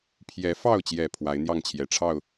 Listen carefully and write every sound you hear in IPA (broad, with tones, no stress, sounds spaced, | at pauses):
pʰ j ɛ˨˦ f ɑ˥˨ ʊ̯ t͡ɕ j ɛ˨˩ pʰ w a˨˦ ɪ̯ n̪ j ɑ˥˨ ŋ t͡ɕʰ j ɛ˨˩ ʈ͡ʂʰ ɑ˥˨ ʊ̯